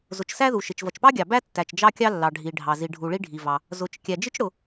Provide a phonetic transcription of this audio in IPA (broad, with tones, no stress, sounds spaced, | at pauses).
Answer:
z ʊ˩ t͡ʃ s æ˥ ð u˩ ʃ ɪ˩ t͡ʃ v ʌ˩ t͡ʃ p ɑ˥ ɡʲ ɑ˩ b æ˥ tː æ˩ t͡ʃ d͡ʒ ɑ˥ kʲ ɑ˥ lː ɑ˩ ɖʱ i˩ ɖʱ ɑ˩ z i˩ ɖʱ u˩ ɭ i˥ ɖʱ i˩ v ɑ˩ | z ʊ˩ t͡ʃ kʲ æ˩ d͡ʒ ɪ˥ t͡ʃ ɽ ʊ˩